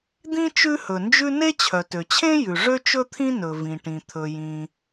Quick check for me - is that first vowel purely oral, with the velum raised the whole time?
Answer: no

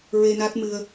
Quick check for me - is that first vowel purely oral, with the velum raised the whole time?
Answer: yes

